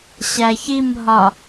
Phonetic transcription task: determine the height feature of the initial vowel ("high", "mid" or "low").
low